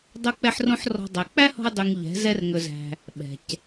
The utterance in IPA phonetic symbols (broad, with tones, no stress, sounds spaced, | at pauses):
dˤ o˦ k͡p ɛ˦ ħ r õ˦ ħ r ɔ̤˦ dˤ æ˧ k͡p æ˦ h ɔ̤˧ ʊ̯ dˤ y˨ ŋ ʎ ɛ̤˨˦ z ɛ˦ r ŋ ɵ˧ z æ̤˧ | ɓ ɛ̤˨ c